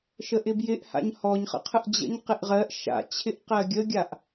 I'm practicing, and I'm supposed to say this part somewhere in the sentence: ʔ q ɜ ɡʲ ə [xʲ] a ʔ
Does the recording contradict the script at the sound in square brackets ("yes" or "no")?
yes